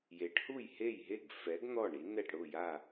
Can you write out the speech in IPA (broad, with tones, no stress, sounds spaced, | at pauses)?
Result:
j e˩˥ ʈ h u˥˩ j h e˥˩ j ɦ e˥˩ ɡ f ɛ˩˥ ɡ n̪ ɔ˥˩ ɳ i˩˥ n ɛ˥˩ ʈ ɽ ʊ˥˩ j a˥˩